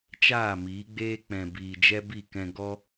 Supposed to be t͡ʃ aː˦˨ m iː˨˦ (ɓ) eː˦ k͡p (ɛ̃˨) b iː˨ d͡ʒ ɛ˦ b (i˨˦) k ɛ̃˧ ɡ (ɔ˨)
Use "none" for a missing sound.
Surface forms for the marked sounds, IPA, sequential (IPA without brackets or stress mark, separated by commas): ɡ͡b, ɛ̃˨, i˦˨, ɔ˦